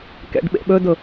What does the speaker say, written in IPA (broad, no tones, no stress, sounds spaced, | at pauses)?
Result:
k ɛ̰ ɖ ɓ ḛ ɓ ɵ d ʊ